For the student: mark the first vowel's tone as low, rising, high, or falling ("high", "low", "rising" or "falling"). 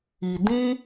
low